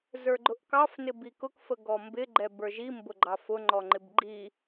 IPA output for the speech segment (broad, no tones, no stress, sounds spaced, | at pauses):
z ə˞ ɡ͡ǃ ʊ ʔ k ɑ f n ɪ b i k ʊ k f ə ɡ ɔ m b ɪ ɡ͡ǃ ɛ b ə˞ ʒ i m b ʊ ɡ͡ǃ ɑ f ʊ ŋ͡ǃ ɔ ŋ͡ǃ ɪ b ɡ͡ǃ i